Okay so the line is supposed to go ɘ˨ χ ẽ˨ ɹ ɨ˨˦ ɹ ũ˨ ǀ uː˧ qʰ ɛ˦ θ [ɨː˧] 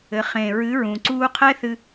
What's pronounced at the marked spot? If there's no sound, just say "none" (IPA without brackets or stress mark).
ɨ˧